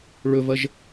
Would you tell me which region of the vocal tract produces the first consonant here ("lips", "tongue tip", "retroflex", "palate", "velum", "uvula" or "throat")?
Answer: retroflex